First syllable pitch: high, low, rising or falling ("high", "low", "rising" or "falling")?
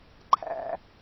high